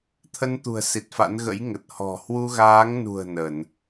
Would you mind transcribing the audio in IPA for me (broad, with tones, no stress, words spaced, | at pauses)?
t̪ʰə˧nt̪ṳ˨˩ə̯ si˨˩t̚fa̰˧˥n ɣə̰˧˥jŋə˨˩t̚ hɔ̤˨˩ hwu˧ɣaː˨˦ŋnṳ˨˩ə̯ nə˧˩˨n